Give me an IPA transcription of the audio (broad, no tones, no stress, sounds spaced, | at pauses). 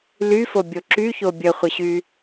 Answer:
l y f o bʲ o ǁ y ç o bʲ ə χʷ ə ɕ y